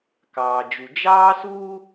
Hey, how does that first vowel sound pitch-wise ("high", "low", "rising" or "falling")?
low